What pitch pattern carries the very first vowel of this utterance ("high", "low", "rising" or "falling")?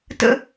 high